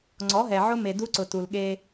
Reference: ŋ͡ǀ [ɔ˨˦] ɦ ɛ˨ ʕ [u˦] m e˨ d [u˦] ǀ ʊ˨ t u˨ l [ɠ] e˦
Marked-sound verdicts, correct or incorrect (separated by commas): correct, incorrect, correct, correct